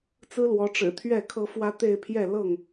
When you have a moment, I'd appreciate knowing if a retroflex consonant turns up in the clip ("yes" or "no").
yes